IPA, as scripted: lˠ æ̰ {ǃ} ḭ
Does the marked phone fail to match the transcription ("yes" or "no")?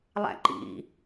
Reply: no